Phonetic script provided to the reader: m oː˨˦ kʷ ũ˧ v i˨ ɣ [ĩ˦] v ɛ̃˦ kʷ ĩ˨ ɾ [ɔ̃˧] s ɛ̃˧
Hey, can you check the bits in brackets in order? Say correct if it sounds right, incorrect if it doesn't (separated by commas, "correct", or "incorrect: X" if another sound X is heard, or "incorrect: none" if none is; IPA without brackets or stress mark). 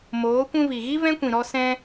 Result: incorrect: i˦, incorrect: ɔ˧